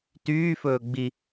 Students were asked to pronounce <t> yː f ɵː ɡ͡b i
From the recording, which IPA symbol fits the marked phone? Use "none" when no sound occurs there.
t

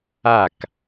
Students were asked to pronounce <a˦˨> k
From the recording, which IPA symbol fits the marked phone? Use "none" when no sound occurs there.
a˦˨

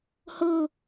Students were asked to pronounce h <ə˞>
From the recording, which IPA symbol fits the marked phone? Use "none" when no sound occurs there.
ɤ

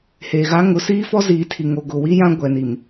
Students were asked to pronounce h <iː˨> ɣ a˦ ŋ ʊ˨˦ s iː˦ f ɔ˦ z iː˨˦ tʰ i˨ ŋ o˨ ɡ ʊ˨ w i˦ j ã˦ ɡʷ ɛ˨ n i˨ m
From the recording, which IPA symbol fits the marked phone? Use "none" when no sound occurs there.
eː˨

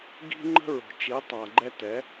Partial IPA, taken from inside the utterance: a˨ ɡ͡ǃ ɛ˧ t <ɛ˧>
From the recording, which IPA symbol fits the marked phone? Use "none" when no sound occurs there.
ɛ˨˦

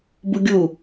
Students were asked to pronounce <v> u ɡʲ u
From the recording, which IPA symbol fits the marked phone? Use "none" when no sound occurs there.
b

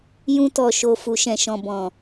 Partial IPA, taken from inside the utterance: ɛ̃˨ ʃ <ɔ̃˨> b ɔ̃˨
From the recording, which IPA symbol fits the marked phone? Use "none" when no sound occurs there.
ɔ̃˨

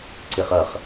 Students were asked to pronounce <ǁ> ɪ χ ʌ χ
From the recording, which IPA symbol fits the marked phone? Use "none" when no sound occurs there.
ǀ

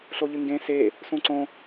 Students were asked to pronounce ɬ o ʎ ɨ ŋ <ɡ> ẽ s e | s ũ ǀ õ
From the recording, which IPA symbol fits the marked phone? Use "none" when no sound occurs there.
ɡ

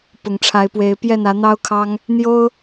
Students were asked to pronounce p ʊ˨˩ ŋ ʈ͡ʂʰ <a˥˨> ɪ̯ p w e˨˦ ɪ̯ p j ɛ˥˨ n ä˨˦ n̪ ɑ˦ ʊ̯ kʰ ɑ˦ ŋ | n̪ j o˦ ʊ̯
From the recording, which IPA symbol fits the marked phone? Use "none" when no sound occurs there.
a˨˦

